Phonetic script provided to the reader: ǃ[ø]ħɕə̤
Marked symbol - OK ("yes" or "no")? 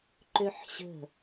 yes